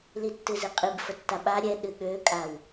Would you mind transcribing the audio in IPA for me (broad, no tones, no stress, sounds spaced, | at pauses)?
l i tː ɨ z i qʼ i b f ə tː a ɓ a ɾʲ ɛ ɗ ɨ ɠ ø kʼ a w